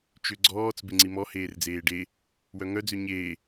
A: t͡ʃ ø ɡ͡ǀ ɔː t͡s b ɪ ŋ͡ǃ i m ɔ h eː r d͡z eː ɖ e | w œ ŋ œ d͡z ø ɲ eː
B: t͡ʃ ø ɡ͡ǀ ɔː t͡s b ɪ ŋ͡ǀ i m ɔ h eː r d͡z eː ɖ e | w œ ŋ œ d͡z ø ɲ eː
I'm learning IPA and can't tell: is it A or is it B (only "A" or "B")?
B